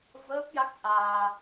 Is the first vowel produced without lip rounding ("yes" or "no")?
yes